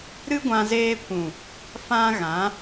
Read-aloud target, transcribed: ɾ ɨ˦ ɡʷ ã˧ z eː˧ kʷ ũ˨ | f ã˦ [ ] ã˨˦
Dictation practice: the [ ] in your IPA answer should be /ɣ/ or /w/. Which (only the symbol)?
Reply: ɣ